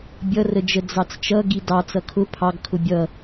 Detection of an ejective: absent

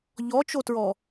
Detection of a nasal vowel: absent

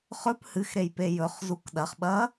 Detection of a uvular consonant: present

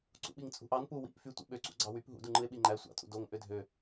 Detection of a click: present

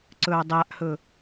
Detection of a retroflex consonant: absent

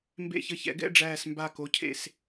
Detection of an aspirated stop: present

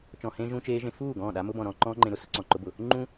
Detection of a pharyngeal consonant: absent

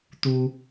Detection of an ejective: absent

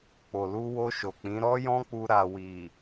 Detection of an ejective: absent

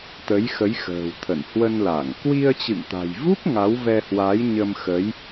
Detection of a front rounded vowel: absent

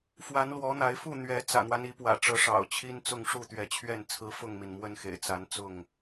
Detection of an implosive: absent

